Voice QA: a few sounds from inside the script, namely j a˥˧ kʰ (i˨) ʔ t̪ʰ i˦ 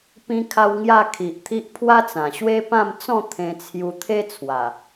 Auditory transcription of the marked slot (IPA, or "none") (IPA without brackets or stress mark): i˨